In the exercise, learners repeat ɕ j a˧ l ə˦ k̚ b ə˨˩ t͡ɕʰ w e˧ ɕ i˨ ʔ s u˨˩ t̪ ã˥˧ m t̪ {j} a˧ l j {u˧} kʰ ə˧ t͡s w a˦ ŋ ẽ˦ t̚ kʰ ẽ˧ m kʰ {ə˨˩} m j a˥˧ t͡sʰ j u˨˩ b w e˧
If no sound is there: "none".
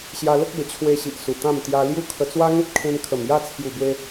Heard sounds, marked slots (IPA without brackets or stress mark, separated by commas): j, u˦, ə˨˩